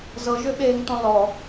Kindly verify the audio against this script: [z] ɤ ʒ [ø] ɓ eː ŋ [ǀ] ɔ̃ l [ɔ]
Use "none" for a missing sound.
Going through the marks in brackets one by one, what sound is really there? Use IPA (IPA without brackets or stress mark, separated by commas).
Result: z, ø, t, ɔ